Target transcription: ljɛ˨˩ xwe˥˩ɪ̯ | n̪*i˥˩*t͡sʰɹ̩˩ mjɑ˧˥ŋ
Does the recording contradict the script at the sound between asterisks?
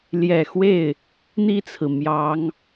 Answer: no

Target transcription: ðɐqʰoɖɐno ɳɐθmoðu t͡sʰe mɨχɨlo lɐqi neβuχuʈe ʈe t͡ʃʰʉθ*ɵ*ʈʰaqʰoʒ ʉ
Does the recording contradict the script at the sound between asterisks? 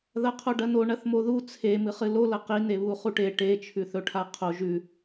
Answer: no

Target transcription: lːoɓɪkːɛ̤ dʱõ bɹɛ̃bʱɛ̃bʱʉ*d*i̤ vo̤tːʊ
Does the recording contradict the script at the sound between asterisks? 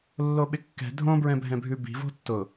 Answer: yes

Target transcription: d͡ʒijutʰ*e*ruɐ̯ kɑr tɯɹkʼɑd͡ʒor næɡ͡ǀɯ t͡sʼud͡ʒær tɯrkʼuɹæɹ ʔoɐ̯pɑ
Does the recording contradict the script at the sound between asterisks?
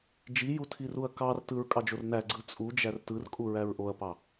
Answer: yes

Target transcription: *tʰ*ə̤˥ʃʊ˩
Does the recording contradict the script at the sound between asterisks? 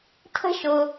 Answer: no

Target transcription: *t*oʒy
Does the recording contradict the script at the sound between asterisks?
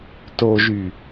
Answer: no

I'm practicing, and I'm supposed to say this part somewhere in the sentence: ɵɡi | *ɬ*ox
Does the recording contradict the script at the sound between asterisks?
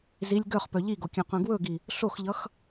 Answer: no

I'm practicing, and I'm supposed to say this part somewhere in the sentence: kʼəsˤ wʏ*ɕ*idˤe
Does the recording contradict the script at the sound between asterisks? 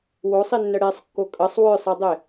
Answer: yes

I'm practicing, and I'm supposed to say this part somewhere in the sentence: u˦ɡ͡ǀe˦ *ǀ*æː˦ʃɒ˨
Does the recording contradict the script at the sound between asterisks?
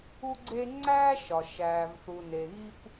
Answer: yes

